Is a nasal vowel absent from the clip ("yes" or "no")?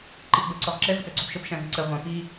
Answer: no